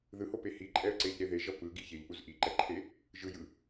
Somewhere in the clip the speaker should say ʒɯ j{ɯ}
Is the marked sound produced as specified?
yes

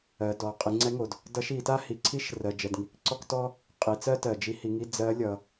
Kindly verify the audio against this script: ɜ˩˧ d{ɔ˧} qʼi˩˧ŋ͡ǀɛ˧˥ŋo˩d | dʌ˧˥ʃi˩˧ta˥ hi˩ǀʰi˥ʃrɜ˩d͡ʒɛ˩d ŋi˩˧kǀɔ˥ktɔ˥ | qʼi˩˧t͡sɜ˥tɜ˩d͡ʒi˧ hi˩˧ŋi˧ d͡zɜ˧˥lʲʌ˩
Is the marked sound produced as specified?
no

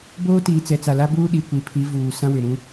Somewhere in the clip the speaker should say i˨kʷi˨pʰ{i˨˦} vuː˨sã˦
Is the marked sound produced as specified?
yes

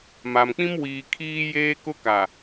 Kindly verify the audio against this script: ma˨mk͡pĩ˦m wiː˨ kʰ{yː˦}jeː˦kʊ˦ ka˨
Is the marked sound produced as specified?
no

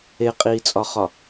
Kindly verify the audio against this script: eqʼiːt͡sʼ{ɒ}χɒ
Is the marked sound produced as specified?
yes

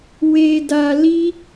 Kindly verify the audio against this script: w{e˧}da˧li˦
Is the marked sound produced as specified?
yes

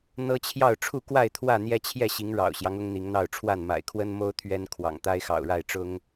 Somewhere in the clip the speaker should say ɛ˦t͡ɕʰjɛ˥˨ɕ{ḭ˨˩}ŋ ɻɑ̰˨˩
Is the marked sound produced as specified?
no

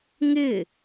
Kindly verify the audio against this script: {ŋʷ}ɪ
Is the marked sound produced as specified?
no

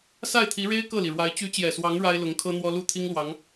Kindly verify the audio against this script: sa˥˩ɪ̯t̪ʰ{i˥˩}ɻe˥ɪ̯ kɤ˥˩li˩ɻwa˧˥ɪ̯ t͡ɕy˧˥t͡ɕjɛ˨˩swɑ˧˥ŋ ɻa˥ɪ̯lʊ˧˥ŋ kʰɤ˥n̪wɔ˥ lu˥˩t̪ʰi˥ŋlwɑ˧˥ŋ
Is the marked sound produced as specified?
no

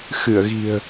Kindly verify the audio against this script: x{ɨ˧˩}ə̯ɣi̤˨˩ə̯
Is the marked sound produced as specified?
yes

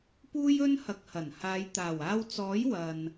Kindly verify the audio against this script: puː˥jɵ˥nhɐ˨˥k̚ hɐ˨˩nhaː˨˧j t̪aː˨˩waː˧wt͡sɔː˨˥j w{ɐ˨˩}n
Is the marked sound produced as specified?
no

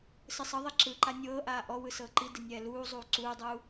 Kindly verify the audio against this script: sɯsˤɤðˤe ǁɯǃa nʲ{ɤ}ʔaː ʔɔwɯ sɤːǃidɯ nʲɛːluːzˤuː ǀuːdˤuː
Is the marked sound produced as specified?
no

